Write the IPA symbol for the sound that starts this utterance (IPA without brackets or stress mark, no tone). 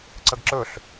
ǀ